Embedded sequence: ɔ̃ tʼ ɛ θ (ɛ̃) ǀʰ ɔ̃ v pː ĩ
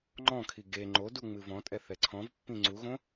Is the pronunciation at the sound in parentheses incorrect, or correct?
incorrect